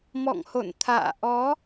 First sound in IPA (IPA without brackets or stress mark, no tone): m